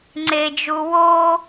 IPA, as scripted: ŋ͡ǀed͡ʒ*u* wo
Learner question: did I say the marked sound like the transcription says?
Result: yes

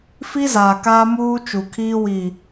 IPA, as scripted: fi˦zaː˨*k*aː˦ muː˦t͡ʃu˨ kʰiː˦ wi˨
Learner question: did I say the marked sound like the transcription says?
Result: yes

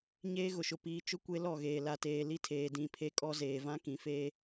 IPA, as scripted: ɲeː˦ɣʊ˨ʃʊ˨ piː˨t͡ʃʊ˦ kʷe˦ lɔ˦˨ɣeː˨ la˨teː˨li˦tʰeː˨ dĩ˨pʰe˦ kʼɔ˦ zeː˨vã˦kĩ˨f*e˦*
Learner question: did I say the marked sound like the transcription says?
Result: no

